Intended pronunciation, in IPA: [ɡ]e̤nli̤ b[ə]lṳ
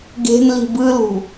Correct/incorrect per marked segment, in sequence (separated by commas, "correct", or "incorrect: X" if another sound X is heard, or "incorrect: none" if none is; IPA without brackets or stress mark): correct, incorrect: ɯ